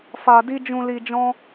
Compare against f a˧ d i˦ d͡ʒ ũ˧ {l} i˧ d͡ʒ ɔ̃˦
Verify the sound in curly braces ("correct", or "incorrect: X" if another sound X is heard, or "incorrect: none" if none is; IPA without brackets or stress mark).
correct